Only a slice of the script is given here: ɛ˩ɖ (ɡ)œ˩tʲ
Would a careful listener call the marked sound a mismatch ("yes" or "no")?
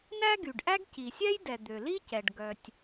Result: no